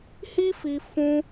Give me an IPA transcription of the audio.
hi˦fi˧ fũ˦

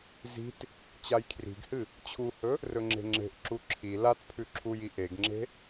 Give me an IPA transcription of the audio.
zi̤t | t͡ɕajkʰri̤ɡhɨ | t͡ɕʰuhɵ | rɵŋ͡ǁe̤ŋ͡ǁe̤ʔǁu ǁʰi latpʰʉ ǁʰuji ʔeɡŋ͡ǁe̤

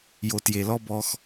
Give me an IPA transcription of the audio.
jo˨tje˨lɔ˦ bɔ˦x

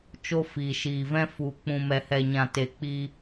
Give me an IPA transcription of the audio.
t͡ʃo˧fiː˨ʃiː˨vɛ̃˧ fu˨ k͡pũ˨mɛ˨hɛ˨ɲã˨ te˨ k͡piː˧

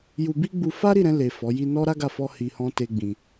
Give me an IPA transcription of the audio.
ju˧bi˦ ɡ͡bu˧ fa˦ɾi˦˨ɾɛ̃˧le˨ fɔ˨˦ji˦ nɔ˦ɾa˦ɡa˦˨ fɔ˧ hi˧hɔ̃˦ te˦ɡ͡bĩ˧

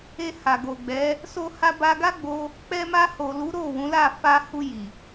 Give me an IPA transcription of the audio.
e˧ha˨ɡo˨ ɡ͡bɛ˨˦ | so˧ha˧ba˧ ɡa˦ɡ͡bo˧ | k͡pɛ˧ma˧ho˨lu˨˦ ɾo˦˨wũ˨˦la˦˨ fa˧hu˧ji˨

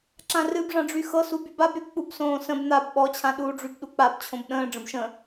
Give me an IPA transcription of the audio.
ǁãrɨbʐã ɖ͡ʐyxɤsu bybab ɾyk͡pubsõːsə̃b n̪ab ɓɔt͡ɕʰãɗuːɖ͡ʐyb ɗuk͡pab t͡ɕʰõbɗə̃ː ɖ͡ʐə̃bʃə̃

